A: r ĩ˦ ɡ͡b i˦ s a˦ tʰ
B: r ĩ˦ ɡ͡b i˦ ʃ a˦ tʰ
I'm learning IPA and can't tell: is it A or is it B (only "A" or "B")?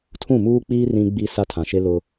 A